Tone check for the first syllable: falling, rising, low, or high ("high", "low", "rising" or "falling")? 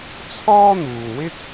high